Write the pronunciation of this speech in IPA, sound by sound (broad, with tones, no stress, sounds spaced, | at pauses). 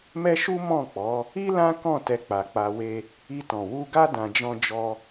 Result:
m ɛ˦ ʃ u˦ m ɔ̃˦˨ k͡p ɔ˨˦ | i˦ l ã˦ k ɔ̃˦˨ t ɛ˧ k͡p a˨ k͡p a˧ w e˦ | i˧ t ɔ̃˨ w u˧ ɡ a˦ d ã˧ d͡ʒ ɔ̃˦ d͡ʒ ɔ˦